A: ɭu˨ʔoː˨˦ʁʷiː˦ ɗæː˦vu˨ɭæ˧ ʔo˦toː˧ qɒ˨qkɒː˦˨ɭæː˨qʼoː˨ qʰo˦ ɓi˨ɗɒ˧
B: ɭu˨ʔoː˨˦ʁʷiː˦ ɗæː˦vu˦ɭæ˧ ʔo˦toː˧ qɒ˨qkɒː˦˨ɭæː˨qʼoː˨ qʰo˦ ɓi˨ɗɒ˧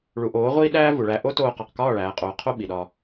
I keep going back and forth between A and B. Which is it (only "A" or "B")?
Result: A